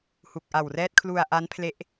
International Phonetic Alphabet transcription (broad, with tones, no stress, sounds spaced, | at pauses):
h u˨˩ k̚ ʔ a˨˩ w r ɛː˦˥ t̚ kʰ l u˧ a̯ ʔ a˦˥ n pʰ l e˦˥ ʔ